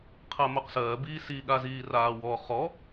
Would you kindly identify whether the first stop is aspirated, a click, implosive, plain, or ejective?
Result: aspirated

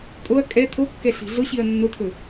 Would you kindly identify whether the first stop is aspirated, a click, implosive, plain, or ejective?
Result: ejective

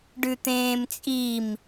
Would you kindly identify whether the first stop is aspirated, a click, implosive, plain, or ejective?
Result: plain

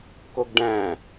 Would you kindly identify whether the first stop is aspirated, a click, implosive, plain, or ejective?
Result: plain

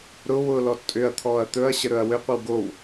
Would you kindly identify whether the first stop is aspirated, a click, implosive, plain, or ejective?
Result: ejective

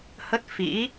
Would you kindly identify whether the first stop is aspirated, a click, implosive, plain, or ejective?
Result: plain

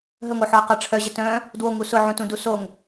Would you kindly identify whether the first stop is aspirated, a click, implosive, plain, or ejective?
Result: plain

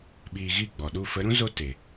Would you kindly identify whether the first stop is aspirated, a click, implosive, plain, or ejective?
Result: implosive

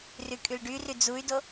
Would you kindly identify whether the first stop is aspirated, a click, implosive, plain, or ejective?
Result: ejective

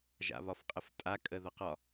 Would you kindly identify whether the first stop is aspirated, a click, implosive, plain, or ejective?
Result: ejective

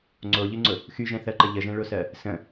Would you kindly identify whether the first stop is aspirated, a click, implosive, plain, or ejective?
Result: click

